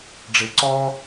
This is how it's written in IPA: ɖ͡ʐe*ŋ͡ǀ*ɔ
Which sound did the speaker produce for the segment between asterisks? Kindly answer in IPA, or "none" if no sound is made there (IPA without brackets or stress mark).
ǀ